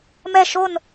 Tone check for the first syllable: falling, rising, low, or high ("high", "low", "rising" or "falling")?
falling